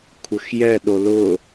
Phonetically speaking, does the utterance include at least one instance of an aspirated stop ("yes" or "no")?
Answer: yes